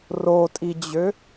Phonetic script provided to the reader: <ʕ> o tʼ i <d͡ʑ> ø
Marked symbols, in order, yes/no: no, yes

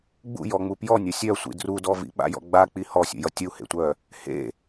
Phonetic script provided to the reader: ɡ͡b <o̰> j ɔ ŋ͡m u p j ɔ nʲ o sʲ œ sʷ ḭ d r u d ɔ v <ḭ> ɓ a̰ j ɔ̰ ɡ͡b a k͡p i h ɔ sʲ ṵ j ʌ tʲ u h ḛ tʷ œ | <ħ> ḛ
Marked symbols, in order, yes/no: no, yes, no

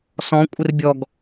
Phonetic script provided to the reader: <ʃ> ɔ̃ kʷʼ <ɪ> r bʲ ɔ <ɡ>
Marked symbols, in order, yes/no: no, yes, yes

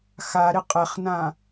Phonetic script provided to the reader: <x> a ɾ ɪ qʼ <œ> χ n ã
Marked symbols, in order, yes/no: yes, no

